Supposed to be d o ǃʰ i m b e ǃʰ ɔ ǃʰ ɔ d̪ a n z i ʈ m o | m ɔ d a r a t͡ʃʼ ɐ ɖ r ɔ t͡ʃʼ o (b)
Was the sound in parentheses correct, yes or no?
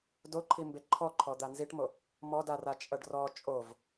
no